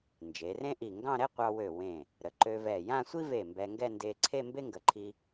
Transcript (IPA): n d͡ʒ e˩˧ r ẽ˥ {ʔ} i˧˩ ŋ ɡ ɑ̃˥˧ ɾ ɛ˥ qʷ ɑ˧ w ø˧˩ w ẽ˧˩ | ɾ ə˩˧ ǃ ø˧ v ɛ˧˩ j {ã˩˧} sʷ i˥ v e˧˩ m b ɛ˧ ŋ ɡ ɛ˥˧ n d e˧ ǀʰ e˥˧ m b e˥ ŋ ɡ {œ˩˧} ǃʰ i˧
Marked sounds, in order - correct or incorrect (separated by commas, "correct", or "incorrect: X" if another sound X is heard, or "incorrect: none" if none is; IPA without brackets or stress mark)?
correct, incorrect: ã˥˧, incorrect: ə˩˧